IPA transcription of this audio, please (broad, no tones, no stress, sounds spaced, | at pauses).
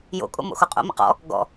j o̰ kʼ o̰ m o̰ x o qʼ o̰ m ə̰ q ɔ̰ | ɡ ɔ̰